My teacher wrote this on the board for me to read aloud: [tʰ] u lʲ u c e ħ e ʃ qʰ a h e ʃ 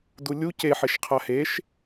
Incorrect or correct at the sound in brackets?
incorrect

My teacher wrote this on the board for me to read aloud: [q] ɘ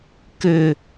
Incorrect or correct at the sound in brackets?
incorrect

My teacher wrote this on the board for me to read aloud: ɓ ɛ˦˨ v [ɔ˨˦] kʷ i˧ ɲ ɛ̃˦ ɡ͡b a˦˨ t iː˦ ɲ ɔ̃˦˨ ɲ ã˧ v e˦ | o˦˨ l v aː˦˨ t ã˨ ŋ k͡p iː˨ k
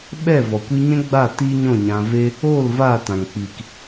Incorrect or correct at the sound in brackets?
incorrect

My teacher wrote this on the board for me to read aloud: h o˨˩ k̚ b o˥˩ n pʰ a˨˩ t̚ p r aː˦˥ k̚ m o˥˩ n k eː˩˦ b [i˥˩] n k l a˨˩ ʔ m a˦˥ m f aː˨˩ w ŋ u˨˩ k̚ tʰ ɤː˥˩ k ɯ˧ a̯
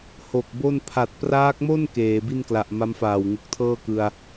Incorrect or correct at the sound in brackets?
correct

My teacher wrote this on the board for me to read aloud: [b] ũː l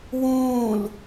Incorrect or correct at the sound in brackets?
incorrect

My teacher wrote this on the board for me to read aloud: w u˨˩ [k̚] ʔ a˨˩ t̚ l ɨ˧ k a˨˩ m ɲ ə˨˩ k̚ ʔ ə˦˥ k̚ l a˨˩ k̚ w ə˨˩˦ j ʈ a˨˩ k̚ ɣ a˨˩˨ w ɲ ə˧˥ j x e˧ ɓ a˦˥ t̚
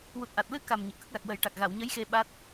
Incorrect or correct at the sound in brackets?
incorrect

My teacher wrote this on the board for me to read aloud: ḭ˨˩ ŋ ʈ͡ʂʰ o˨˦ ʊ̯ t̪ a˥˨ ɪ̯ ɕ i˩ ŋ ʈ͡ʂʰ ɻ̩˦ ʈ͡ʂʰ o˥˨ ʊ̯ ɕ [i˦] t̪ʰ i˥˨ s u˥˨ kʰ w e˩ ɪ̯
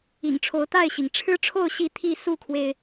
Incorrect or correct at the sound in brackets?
incorrect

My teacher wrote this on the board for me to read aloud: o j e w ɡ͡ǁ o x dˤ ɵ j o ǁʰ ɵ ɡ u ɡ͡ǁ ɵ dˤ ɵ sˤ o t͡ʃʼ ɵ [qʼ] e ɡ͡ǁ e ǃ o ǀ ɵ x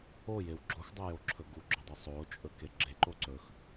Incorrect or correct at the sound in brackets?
incorrect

